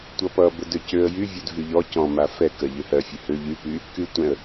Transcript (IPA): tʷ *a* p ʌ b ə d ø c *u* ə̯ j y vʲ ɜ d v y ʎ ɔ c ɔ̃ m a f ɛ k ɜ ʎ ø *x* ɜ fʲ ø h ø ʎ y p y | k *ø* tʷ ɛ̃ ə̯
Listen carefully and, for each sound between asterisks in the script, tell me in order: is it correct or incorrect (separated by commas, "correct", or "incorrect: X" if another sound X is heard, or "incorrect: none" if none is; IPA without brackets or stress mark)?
incorrect: ʌ, incorrect: ø, incorrect: h, incorrect: y